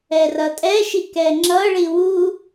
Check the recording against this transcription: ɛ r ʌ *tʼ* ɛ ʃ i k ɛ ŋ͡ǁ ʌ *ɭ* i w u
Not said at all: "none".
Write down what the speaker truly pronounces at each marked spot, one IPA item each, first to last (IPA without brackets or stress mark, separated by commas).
tʼ, ɭ